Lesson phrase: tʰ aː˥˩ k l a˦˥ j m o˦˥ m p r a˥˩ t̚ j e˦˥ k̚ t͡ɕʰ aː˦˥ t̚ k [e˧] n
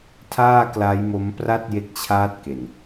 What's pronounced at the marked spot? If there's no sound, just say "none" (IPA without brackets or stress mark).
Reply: e˨˩